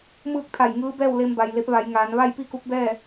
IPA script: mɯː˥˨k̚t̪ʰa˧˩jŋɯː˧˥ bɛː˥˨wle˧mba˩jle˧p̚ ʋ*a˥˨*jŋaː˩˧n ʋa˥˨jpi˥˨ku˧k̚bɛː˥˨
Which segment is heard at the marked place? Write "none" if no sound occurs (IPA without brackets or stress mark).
a˩˧